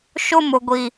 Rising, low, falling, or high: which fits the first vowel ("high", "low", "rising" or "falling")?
high